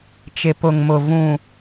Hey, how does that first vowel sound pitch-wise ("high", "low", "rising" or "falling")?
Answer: low